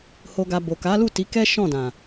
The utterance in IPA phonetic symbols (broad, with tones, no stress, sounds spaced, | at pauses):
h o˨ ɡ a˨ b o˨ k a˨˦ l u˦˨ t i˨˦ k ɛ˦ ʃ ɔ̃˦˨ d ã˨